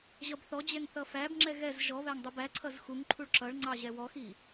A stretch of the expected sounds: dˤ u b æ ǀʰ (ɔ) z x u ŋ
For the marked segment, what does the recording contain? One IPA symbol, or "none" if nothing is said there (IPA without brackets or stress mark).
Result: ʌ